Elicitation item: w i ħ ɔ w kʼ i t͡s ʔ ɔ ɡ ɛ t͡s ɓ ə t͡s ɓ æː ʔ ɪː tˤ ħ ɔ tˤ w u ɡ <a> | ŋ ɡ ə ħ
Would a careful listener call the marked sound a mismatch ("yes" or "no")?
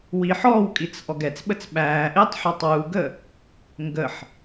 yes